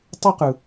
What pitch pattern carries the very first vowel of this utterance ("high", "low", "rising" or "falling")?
high